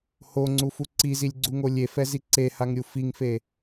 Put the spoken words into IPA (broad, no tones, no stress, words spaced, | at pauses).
hoŋ͡ǀufu ǀizilʲɡ͡ǀuŋo lʲefɛzi ǀehaŋɾʲu fiŋfe